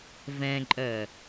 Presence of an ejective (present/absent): present